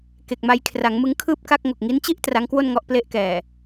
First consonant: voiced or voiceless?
voiceless